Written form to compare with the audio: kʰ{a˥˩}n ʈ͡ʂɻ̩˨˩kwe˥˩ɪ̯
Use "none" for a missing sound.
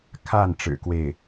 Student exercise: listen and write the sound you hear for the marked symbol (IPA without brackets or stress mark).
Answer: a˥˩